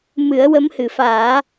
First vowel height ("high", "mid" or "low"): high